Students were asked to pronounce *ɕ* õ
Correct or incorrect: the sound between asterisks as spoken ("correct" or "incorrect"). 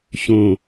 correct